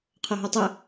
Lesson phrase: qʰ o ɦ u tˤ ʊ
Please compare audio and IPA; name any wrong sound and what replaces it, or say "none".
none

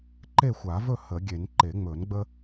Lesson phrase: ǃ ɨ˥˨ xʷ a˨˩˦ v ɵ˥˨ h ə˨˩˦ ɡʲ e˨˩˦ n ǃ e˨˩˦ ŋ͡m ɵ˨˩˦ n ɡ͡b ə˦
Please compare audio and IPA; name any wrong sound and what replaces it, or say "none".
ɨ˥˨ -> e˥˨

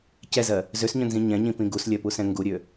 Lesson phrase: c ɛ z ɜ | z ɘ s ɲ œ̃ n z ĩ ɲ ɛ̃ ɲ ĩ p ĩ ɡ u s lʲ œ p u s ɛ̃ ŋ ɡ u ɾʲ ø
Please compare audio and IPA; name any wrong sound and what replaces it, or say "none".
ɘ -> ø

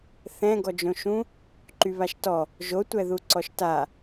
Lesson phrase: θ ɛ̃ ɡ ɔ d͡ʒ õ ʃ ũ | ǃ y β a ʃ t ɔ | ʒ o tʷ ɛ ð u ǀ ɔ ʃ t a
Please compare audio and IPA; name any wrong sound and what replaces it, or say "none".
none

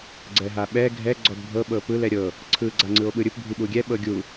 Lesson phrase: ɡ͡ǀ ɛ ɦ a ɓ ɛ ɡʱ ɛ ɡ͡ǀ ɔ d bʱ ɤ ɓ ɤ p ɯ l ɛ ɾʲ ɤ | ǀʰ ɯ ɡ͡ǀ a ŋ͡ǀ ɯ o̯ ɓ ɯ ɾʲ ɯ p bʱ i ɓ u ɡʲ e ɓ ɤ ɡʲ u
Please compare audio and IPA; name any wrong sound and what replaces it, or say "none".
e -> ɛ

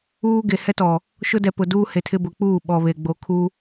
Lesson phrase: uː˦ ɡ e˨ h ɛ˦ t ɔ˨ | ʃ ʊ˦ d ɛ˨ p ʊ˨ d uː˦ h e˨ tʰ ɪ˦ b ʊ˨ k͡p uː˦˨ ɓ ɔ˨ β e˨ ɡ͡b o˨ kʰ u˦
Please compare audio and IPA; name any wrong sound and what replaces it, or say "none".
none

